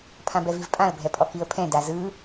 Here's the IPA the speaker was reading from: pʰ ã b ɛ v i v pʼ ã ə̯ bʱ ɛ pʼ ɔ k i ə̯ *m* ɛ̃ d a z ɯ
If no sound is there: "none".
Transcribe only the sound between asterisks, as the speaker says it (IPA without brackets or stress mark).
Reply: pʰ